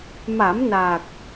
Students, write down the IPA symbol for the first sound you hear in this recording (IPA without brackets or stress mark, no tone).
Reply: m